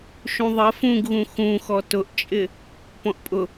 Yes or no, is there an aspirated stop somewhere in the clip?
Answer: no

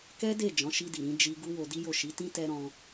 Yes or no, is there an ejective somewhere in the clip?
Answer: no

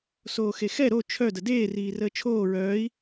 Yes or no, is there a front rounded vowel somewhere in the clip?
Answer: yes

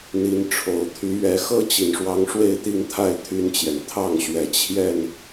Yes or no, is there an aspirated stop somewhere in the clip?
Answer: yes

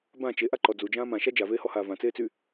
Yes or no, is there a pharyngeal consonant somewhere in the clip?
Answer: no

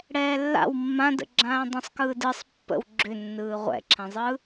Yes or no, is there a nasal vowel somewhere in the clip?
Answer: yes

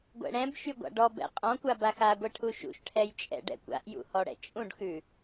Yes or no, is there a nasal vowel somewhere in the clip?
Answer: yes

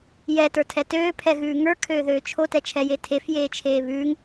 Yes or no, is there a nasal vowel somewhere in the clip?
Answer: no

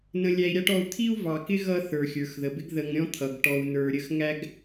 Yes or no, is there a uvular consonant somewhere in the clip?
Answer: no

